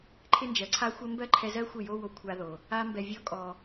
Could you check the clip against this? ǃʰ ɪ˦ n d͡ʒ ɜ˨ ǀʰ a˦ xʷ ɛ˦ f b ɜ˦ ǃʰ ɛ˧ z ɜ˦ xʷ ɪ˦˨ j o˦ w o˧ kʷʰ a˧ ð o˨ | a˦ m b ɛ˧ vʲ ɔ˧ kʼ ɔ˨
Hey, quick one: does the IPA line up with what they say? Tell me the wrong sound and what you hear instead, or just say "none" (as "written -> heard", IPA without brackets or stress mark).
f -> m